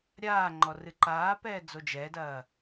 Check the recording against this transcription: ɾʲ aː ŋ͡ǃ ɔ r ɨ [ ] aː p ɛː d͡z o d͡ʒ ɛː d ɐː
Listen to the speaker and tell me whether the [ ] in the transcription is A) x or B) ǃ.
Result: B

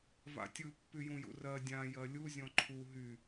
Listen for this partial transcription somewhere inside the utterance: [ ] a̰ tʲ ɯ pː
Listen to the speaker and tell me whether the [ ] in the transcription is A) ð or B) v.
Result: B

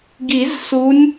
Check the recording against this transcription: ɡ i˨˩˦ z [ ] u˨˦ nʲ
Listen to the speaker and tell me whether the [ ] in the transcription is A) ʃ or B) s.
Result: B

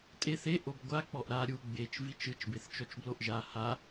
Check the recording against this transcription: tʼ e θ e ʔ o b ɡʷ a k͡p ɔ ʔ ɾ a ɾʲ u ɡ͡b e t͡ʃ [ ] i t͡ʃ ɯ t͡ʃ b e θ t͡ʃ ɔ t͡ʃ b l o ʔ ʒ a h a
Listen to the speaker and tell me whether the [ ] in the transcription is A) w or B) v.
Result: B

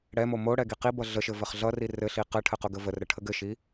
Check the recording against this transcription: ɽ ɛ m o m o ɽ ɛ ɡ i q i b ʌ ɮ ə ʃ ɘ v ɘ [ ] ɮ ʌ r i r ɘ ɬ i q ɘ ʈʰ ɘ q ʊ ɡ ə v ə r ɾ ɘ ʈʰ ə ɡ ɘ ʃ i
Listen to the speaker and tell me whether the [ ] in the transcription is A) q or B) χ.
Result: B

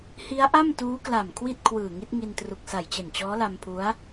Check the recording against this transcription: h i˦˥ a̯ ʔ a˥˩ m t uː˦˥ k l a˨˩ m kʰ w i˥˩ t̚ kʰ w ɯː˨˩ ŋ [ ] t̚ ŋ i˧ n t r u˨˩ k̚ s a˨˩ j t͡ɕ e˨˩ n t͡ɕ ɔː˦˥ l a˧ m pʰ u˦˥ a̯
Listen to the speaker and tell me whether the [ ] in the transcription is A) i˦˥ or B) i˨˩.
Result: A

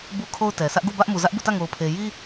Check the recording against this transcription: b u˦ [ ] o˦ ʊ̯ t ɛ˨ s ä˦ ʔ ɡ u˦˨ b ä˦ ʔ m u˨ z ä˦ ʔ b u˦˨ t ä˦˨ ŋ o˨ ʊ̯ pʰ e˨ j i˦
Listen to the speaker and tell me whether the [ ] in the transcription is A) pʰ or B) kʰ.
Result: B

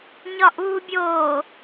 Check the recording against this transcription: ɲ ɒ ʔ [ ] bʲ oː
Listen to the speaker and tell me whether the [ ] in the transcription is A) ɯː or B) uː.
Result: B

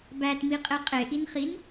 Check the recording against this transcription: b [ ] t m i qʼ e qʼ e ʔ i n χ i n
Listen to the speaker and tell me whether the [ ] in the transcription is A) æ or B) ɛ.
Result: A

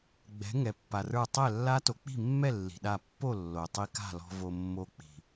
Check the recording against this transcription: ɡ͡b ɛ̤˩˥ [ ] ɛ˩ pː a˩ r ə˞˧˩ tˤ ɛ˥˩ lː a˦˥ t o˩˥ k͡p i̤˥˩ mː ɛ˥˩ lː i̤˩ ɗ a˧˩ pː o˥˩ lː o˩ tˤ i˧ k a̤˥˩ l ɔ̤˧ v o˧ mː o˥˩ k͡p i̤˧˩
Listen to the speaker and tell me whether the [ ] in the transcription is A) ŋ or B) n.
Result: A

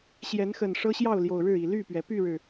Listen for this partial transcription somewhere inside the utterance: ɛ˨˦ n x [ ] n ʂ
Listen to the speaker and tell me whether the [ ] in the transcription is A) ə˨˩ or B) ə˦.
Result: A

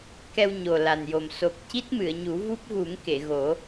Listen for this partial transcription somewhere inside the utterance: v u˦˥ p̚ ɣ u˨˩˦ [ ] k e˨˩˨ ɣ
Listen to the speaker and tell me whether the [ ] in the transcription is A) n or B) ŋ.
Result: B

